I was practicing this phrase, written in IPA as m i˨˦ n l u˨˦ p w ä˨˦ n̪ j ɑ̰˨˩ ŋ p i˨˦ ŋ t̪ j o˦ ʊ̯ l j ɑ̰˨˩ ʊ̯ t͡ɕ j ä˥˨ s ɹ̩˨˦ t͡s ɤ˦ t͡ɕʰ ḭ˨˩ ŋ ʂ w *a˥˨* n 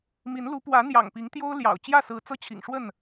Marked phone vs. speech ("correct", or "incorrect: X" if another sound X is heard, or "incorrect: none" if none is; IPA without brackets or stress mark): incorrect: ə˥˨